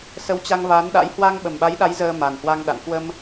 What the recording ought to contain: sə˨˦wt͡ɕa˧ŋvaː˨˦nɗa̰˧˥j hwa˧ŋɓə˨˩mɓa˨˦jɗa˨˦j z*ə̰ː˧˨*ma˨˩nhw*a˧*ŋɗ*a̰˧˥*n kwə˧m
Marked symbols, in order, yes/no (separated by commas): no, yes, no